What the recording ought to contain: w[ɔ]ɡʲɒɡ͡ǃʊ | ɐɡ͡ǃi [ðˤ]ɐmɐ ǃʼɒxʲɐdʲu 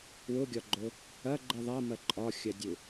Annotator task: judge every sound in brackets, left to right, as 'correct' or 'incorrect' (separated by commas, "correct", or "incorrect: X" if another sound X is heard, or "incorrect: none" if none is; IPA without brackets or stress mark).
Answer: incorrect: ʊ, correct